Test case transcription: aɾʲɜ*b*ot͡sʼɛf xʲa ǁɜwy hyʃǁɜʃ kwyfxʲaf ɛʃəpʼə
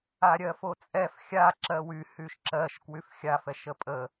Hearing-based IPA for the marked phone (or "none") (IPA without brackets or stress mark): f